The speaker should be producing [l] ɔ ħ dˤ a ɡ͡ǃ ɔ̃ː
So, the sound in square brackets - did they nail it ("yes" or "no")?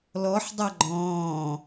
yes